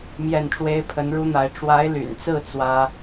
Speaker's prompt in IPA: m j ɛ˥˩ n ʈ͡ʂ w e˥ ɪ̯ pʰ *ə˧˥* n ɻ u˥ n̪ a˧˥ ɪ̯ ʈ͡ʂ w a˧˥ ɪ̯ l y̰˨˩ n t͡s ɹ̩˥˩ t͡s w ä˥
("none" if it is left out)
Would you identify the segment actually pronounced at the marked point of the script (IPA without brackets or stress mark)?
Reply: ə˧˥